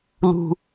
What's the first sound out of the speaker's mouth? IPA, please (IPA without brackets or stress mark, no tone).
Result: l